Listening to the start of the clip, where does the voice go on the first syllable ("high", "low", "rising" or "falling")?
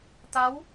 rising